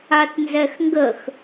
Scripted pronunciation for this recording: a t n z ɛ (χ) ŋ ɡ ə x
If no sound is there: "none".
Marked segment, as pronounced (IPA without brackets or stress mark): x